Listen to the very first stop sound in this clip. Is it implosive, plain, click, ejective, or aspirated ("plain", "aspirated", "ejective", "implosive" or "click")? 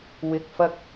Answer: plain